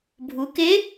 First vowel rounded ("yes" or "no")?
yes